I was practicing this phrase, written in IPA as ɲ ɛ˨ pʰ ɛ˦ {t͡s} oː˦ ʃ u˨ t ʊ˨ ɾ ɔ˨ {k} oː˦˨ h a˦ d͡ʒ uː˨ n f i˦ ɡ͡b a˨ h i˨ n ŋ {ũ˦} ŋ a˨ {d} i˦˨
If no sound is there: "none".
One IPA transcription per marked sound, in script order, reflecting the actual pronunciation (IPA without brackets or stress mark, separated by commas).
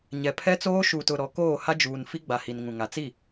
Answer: t͡s, k, ũ˨, t͡s